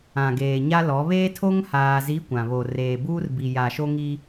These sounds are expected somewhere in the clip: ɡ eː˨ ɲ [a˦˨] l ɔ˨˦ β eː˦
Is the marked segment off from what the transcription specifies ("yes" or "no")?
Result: yes